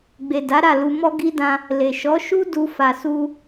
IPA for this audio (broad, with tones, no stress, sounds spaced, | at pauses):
ɡ͡b e˨ d a˨˦ ɾ a˦˨ l u˧ m ɔ˦ ɡ i˦ d ã˧ | l e˨ ʃ ɔ˨˦ ʃ u˦ d u˧ f a˨ s u˧